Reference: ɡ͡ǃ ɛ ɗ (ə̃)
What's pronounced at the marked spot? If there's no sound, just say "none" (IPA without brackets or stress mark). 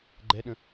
ə̃